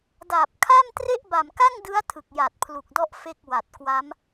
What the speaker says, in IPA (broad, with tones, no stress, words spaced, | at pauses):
da˨˩p̚kʰa˥˩mtre˥˩ʔ ba˨˩mka˥˩ŋdɯ˦˥a̯ tʰɯ˨˩k̚ja˨˩t̚pʰlu˨˩k̚dɔ˦˥ʔ fe˥˩k̚wa˨˩t̚kwa˦˥m